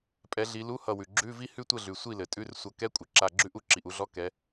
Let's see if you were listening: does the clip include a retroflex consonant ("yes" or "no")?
no